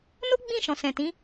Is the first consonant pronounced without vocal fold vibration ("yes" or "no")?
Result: no